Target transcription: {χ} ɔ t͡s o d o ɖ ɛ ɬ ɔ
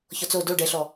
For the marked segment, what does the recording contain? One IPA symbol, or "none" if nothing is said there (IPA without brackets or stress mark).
ç